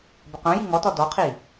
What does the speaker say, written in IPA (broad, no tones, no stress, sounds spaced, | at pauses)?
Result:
b ə q œ̃ j i ŋ ɔ t ɔ d ɔ qʰ i